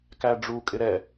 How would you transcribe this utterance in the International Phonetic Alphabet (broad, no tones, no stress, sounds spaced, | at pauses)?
k æ ɖ͡ʐ u kʼ ɪ ɾ ɛ